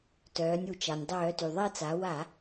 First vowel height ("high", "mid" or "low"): mid